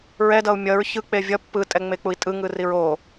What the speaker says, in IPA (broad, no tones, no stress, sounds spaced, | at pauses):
ɹ ɛ d ʌ u̯ mʲ ʌ ɹ ç ɯ k͡p e vʲ ʌ pː ɯ tʼ ɛ ŋ͡m e k͡p u i̯ tʼ ɯ ŋ ɯ r i ɹ o